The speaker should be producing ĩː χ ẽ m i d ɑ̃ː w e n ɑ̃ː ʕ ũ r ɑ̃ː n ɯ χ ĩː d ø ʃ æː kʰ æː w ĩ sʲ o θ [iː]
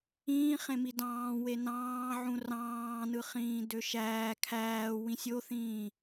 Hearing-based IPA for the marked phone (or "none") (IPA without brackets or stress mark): ĩː